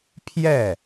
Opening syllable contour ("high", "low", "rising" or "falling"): falling